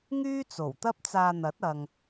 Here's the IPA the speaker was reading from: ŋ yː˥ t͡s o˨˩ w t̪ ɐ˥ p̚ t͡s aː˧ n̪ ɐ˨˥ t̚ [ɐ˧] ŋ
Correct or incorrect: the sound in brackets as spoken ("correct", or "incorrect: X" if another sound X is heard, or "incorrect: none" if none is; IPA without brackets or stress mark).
incorrect: ɐ˨